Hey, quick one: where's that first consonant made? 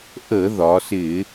throat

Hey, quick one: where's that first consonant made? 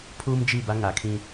lips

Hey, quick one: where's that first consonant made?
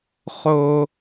uvula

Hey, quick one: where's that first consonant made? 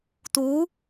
tongue tip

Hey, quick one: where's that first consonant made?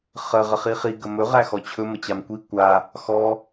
uvula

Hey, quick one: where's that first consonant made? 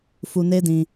lips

